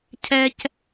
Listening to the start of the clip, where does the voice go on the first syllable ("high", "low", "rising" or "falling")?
high